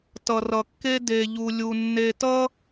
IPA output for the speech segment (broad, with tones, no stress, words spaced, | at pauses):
tʌ˨rʌ˨kːe˦ de˨ʎu˨lʲu˨ nːe˨tʌ˦